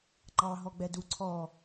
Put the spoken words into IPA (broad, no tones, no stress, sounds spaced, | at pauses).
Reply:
ŋ͡ǃ ɑ ɦ ɔ ɡ͡b ɛ d u ǀʰ ɔ